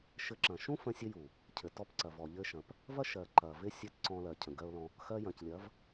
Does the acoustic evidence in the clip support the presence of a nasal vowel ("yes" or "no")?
yes